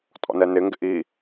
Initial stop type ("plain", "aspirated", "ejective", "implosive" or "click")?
ejective